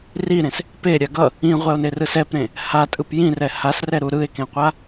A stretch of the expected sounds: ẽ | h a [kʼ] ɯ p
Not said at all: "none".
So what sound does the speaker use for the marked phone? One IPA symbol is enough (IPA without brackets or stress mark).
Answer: tʼ